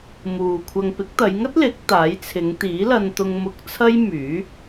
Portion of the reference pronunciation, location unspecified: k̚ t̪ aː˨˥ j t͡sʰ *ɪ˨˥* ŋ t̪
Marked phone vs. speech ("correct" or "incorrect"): incorrect